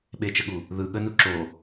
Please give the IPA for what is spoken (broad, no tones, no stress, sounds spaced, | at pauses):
ɓ e t͡ʃ ə ɠ u | ð ɯ ɠ ə n u ǁ o